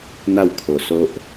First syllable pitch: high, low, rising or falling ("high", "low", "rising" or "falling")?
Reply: falling